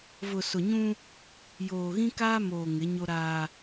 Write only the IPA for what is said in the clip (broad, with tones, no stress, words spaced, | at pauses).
vʊ˨sʊ˨ɲũ˦ | joː˨ɣĩ˦kaː˦moː˨ ŋɪ˨˦ ɲo˦ɾaː˦